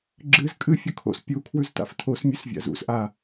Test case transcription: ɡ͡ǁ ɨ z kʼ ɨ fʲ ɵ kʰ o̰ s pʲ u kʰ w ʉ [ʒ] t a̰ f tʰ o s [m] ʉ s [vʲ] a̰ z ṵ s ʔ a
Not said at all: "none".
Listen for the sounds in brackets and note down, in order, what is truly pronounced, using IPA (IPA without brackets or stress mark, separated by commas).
z, mʲ, vʲ